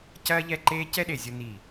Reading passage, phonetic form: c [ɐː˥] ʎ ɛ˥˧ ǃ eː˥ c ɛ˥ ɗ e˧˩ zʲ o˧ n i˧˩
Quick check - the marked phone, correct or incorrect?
correct